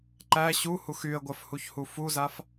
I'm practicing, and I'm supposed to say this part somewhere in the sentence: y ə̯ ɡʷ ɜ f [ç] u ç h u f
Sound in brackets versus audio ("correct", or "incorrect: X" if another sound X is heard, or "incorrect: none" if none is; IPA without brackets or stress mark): incorrect: h